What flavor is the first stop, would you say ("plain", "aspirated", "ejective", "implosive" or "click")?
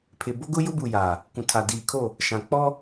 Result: aspirated